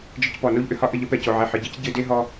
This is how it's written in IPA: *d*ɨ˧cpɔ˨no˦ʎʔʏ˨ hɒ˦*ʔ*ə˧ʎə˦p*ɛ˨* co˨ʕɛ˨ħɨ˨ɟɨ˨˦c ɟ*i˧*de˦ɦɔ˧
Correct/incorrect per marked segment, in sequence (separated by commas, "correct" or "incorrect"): incorrect, correct, correct, incorrect